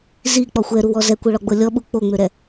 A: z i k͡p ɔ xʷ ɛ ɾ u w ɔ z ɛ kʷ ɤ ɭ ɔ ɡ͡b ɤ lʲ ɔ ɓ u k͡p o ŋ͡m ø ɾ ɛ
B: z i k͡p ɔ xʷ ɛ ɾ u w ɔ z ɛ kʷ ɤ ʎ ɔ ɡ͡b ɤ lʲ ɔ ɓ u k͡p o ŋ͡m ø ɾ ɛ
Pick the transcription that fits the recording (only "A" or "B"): A